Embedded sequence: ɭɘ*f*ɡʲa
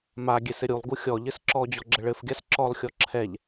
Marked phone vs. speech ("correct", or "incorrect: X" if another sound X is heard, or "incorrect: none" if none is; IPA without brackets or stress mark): correct